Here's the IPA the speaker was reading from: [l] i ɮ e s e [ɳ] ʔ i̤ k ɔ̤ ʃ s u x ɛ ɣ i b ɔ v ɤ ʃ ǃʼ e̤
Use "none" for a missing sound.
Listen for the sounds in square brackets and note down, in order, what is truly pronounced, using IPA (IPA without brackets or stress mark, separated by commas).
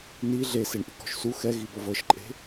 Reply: n, ɳ